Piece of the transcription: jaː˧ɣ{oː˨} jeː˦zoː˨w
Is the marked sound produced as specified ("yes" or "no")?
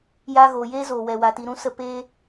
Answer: yes